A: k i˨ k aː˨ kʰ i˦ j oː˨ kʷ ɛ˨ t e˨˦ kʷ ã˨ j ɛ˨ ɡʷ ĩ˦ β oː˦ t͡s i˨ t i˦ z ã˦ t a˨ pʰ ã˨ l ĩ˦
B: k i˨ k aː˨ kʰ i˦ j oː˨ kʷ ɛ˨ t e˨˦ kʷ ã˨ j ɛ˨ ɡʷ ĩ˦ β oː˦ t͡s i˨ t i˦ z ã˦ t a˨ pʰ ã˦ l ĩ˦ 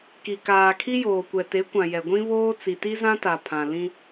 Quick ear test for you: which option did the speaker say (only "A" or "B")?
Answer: A